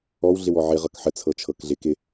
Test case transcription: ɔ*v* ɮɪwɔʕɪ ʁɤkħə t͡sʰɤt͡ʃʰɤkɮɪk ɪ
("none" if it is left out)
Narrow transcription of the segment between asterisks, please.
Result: w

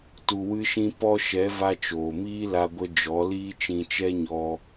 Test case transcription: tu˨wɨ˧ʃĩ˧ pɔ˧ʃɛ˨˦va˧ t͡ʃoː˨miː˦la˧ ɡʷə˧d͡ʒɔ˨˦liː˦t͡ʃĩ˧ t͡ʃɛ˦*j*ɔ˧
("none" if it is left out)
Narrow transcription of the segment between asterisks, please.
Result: ɲ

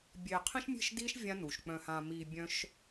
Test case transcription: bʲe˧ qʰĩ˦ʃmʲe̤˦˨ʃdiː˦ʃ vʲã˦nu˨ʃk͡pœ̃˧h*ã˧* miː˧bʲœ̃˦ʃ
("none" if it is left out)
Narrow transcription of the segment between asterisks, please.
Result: ã˧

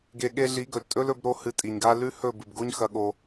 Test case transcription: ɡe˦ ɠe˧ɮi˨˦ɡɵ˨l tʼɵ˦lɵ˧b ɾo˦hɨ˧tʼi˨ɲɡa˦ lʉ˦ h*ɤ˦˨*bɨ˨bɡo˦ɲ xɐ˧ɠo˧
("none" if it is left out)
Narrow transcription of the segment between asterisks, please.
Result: ɵ˦˨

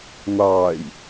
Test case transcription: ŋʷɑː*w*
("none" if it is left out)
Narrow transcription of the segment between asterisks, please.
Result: j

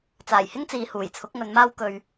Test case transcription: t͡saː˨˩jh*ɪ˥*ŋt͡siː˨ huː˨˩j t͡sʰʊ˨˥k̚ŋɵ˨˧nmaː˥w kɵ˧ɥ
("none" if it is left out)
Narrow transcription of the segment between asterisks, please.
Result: ɪ˥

